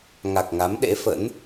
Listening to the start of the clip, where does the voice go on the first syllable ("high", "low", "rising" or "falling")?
low